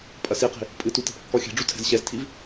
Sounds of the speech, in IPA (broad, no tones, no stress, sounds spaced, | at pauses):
pʼ ɐ s i q i̤ | pʼ ɨ t u t ɛ̤ p kː ɔ xʲ ɛ̤ ɖ͡ʐ u tʰ ɛ̤ z ɕ ɛ z tʰ i v